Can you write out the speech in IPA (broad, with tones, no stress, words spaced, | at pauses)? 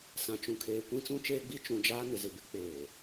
sã˨t͡ʃũ˨kʰeː˨ kʷĩ˦t͡sũ˦t͡ʃeː˦ɡ͡bi˦ t͡ʃũ˨d͡ʒaː˦ nɪ˨zɪ˨ bɪ˦k͡peː˨